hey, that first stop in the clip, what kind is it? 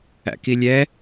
plain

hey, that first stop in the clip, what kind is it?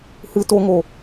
plain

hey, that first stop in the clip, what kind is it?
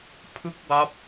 aspirated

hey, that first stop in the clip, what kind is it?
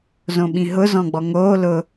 implosive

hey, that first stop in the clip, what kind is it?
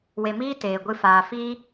plain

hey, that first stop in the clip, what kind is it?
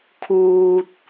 aspirated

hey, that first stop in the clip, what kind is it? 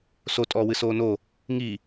ejective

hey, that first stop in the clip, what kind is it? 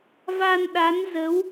implosive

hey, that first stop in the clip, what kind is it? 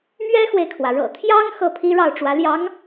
aspirated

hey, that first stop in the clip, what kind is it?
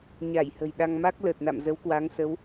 implosive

